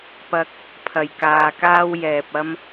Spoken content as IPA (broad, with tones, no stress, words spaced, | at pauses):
pɐ˧k̚ | pʰɐ˨˩jkaː˨kaː˥w jɛː˨p̚ ɐ˥m